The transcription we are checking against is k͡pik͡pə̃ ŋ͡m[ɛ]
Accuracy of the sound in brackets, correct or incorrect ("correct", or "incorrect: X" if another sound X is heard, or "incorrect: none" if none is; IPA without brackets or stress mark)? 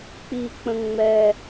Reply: correct